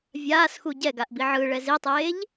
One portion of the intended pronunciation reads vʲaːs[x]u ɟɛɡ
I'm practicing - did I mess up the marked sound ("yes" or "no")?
no